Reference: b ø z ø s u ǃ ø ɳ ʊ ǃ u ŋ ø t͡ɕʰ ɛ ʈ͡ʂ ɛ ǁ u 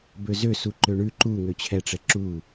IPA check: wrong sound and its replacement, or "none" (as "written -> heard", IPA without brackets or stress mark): ʊ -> ʉ